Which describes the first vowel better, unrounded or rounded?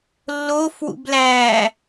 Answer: rounded